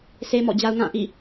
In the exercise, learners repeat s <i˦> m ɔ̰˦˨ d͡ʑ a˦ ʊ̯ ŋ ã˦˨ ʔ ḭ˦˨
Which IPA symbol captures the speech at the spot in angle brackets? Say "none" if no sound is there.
e˦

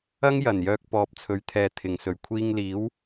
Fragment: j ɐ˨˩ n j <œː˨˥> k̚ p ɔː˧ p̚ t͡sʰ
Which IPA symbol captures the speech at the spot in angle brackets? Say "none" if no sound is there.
œː˧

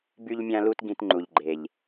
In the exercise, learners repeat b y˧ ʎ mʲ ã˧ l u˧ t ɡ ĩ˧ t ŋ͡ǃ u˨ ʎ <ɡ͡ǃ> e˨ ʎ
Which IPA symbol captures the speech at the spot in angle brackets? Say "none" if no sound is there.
ɡ͡ǃ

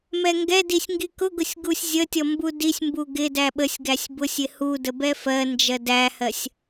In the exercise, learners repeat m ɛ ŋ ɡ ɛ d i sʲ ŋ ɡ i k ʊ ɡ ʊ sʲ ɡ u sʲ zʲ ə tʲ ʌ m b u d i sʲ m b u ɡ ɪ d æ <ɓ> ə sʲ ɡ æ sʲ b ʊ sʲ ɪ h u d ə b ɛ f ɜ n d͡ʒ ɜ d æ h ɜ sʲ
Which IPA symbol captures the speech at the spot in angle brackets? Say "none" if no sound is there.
ɓ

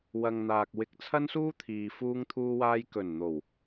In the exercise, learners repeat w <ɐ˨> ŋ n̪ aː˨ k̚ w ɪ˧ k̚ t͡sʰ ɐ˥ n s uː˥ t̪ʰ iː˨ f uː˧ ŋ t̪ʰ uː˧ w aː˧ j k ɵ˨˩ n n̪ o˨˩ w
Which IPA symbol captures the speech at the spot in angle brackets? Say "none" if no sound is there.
ɐ˨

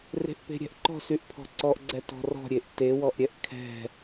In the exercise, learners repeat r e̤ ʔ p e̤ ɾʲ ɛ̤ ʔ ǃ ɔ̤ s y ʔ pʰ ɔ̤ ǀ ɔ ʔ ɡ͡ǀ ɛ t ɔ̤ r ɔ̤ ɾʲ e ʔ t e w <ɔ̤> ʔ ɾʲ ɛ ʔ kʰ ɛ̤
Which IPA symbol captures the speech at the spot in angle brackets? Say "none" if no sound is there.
ɔ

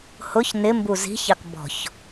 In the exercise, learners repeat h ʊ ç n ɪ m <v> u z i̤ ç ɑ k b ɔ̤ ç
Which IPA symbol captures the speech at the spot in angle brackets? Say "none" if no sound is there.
b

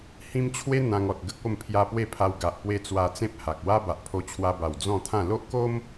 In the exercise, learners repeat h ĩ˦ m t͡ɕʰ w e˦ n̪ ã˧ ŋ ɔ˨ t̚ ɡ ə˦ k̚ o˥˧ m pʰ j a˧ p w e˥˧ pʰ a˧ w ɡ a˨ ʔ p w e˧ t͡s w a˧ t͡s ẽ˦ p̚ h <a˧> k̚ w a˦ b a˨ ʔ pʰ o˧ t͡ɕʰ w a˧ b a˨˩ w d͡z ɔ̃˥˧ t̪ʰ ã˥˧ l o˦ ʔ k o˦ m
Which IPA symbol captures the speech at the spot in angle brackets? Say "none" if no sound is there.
a˨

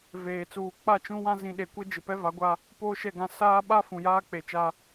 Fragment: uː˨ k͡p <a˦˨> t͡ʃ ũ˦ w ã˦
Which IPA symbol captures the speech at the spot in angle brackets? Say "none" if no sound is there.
a˦˨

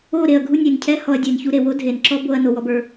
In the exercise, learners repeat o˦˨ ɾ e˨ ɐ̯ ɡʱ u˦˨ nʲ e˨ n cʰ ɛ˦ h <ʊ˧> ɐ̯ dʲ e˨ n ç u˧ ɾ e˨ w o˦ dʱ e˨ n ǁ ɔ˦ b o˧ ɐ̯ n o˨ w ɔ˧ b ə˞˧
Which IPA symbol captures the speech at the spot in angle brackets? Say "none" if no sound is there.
ɔ˧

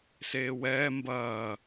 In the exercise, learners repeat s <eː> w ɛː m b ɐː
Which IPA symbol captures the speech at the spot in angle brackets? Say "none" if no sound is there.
eː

